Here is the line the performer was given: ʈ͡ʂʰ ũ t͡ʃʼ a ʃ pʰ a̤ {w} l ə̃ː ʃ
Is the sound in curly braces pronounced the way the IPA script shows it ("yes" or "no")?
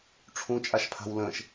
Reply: yes